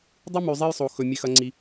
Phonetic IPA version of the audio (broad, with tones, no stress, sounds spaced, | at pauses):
dˤ ɨ˦ m ʉ˨ zˤ e˦ j sˤ o˨ x ɵ˨ mʲ e˦ x ɐ˦ ŋ͡ǀ i˦